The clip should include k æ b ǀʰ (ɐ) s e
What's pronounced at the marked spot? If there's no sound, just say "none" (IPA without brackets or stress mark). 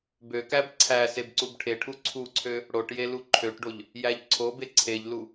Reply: æ